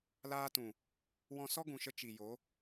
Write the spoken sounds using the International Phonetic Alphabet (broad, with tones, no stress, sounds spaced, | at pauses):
l aː˦ t ũ˨ | w ɔ̃˧ s ɔ˦ ɡ ũ˨ ʃ ə˧ t͡ʃ i˨ j o˨˦